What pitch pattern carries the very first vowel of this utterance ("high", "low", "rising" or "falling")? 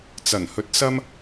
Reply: low